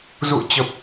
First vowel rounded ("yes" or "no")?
yes